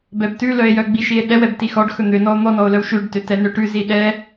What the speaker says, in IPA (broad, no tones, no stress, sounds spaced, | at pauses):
b ɛ b t ʉ l œ e̯ j œ ɡ͡b i ʃ i e̯ ɗ ɛ w ɛ b t i x ɔ ɖ x ɵ n̪ ø n ɔ o̯ n̪ ɔ n ɔ o̯ l œ w ʃ ʉ ɖ t ø t ɛ n ø ʈ ʉ z i ɗ ɛ